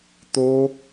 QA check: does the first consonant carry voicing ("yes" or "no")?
no